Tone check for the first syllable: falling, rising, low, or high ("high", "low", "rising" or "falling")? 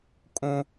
high